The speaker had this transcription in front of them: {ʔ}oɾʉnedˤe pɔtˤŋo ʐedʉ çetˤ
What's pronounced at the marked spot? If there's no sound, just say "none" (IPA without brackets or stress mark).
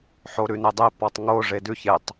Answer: ħ